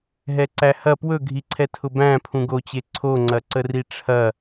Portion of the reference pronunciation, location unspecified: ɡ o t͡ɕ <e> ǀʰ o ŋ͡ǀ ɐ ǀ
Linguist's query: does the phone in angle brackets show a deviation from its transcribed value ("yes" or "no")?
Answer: no